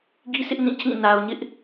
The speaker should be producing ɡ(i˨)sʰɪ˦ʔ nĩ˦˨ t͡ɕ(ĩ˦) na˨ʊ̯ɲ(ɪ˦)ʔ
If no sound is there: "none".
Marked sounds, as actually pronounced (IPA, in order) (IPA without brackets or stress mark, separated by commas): i˦, ĩ˦˨, ɪ˦